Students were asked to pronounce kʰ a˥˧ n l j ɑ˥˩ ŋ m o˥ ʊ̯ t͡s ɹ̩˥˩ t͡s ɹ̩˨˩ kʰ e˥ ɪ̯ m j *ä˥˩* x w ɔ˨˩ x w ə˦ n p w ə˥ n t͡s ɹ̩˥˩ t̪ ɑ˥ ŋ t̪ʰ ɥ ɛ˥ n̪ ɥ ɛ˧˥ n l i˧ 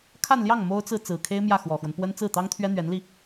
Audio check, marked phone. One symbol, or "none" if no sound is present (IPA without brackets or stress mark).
ä˥˩